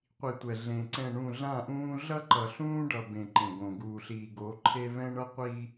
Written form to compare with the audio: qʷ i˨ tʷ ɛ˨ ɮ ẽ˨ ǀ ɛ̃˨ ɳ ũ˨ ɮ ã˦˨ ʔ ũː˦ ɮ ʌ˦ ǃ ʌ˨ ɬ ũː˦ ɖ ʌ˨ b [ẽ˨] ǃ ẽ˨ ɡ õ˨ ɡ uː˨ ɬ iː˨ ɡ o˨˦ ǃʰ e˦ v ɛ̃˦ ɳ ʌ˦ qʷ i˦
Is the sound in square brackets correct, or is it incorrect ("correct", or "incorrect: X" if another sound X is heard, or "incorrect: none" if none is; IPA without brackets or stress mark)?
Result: correct